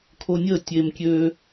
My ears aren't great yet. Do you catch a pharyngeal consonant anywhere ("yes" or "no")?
no